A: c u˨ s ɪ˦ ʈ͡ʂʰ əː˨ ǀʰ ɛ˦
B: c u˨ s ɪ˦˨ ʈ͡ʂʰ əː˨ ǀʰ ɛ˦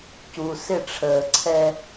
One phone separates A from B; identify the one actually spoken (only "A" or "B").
B